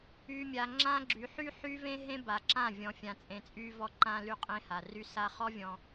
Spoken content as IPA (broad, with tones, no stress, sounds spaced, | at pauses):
y˨ mʲ a˨ ŋ͡ǁ ã˦ ɡ͡ǁ y˨˦ ħ y˦ ħ y˦ v ẽ˦ ɦ ẽ˦ b a˨ ǁ ã˦˨ vʲ ɔ̃˨ fʲ ã˨ t͡sʼ ẽ˨ t͡sʼ y˦ v ɔ˦ ǃ ã˦ l y˦ qʼ ẽ˦ h a˨ r y˦ s a˦ χ ɔ˦ vʲ ɔ̃˨